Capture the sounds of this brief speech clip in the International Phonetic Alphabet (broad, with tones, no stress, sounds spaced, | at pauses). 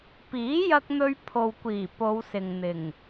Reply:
p iː˨˥ j ɐ˧ k̚ n̪ ɵ˧ ɥ pʰ o˨ w kʷ iː˨˩ p o˨˧ w s ɪ˨ ŋ n̪ ɪ˨˩ ŋ